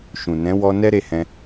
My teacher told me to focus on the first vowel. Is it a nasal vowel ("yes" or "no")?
yes